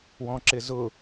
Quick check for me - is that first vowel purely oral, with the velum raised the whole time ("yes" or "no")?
no